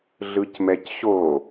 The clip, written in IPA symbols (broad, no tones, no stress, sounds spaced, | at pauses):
ɮ ɯ c m ɛ c ɕ o